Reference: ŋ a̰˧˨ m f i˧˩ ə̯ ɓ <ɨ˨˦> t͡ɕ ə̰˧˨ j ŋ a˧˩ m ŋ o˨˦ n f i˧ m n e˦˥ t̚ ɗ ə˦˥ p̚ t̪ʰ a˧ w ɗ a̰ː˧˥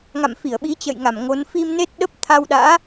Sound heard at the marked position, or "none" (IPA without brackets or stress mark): i˨˦